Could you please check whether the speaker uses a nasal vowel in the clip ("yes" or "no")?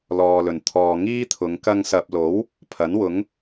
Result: no